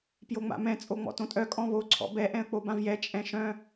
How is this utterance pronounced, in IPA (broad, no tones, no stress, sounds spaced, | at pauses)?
p j o ŋ͡m a̰ m ɛ̃ t͡sʼ o ŋ͡m ɔ̰ t õ tʼ œ kʼ ɔ̃ β o ǀʰ ɔ̰ b ɛ ʔ ɛ̃ ə̯ k͡p o b ã v j ɛ t͡ʃʼ ɛ̃ ʃ œ̃